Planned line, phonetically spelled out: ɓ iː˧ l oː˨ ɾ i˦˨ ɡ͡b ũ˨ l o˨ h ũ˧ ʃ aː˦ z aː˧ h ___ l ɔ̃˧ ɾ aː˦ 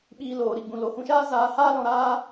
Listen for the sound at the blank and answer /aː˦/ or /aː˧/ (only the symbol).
aː˦